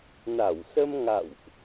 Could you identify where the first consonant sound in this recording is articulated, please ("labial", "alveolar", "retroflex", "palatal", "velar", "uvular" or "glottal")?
alveolar